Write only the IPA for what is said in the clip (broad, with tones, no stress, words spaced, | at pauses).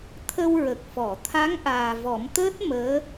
t̪ʰə˧w ɹə˨˩k̚fɔ˨˩˨ t̪ʰa˧˥ŋ ʔaː˨˩vɔ˨˩˦mt̪əː˦˥t̚ məː˧˥